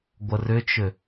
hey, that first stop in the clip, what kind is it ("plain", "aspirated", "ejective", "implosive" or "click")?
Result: plain